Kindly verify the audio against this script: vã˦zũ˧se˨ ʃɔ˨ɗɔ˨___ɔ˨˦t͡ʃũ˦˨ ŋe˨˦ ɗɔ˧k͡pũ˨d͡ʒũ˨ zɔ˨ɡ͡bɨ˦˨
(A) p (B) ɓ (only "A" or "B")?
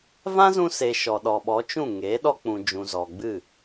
B